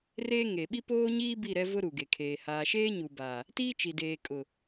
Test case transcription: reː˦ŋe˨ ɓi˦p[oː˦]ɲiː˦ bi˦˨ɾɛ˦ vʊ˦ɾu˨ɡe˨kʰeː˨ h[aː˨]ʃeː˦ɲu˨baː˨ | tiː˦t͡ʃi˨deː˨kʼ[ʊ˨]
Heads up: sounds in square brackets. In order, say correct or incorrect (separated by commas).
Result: correct, correct, correct